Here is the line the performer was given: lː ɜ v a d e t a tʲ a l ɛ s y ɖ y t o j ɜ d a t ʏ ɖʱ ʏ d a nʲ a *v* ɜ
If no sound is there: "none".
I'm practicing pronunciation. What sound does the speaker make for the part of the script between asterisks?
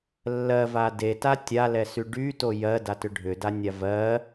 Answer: v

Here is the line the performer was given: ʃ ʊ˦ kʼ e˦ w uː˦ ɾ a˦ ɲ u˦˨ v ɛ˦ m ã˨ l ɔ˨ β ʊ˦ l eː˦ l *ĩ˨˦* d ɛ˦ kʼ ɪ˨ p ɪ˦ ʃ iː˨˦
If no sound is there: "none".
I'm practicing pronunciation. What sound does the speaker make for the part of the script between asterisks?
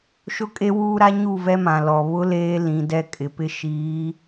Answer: ĩ˨˦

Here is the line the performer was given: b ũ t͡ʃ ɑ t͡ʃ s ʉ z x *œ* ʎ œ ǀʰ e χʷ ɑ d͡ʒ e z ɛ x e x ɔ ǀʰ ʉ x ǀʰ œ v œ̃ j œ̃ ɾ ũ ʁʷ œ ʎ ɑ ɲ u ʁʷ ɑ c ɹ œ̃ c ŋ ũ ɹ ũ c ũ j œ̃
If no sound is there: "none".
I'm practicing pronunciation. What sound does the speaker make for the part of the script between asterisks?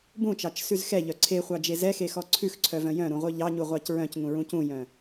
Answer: ɛ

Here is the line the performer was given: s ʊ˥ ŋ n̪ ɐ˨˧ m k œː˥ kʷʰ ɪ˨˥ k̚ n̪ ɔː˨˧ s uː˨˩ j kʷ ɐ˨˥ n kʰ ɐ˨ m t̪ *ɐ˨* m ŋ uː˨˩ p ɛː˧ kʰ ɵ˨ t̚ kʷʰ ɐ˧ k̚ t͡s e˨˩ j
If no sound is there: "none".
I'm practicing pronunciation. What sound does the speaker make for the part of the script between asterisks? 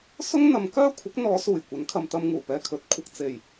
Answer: ɐ˧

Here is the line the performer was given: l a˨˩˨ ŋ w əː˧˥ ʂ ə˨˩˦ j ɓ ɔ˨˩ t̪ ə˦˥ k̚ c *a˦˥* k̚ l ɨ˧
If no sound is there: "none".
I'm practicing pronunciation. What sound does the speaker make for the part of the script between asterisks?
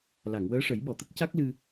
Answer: a˦˥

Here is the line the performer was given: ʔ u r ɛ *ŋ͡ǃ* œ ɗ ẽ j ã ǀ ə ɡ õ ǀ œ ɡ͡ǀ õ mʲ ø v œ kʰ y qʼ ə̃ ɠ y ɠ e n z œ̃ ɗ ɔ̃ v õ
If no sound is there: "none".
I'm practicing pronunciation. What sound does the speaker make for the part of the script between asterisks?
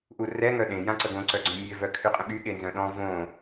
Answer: ŋ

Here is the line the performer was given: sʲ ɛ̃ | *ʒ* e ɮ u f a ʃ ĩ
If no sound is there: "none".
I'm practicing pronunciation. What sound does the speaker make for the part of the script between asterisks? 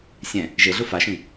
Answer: ʒ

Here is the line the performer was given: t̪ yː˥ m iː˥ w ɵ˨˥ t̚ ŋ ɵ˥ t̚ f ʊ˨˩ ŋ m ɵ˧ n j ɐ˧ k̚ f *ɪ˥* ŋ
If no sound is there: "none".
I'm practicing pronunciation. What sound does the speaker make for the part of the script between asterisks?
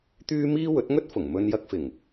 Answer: ɪ˨˩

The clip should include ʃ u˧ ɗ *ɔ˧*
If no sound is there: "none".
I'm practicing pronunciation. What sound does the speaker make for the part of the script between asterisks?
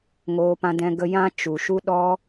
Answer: ɔ˧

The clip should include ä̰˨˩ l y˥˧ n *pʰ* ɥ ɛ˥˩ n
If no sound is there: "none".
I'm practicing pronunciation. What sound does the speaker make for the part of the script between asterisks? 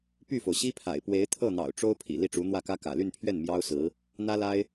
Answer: pʰ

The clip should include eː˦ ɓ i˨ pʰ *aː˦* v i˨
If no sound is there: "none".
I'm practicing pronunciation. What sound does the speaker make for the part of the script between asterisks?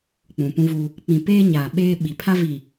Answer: a˦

